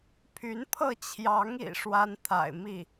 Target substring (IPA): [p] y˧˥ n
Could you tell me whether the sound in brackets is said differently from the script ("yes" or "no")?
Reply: yes